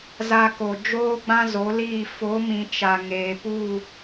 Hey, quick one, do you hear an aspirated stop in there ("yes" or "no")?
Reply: no